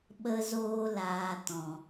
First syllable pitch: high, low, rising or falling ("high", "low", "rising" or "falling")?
high